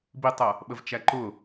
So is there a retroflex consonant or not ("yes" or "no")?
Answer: no